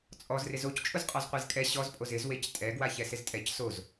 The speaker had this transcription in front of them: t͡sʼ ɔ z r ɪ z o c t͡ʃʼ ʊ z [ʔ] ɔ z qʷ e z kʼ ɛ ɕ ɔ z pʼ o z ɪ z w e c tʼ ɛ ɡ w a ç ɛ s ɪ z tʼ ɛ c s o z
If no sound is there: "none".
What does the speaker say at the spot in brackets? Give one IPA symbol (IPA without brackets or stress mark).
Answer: qʼ